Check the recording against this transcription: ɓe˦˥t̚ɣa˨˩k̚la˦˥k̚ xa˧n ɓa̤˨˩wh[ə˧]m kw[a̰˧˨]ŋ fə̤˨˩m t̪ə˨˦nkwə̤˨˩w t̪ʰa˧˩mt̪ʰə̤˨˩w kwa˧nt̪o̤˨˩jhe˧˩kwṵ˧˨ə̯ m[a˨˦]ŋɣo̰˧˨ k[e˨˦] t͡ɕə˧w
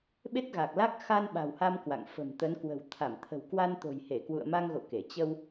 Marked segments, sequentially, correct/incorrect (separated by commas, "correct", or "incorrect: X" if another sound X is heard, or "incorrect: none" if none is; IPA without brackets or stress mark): incorrect: a˧, correct, incorrect: a˧, incorrect: e˧˩